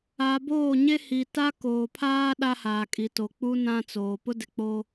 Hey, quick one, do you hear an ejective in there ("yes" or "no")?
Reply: yes